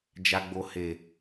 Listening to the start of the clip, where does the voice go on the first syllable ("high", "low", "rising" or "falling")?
low